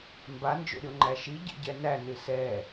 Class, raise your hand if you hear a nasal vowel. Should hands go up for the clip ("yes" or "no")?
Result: no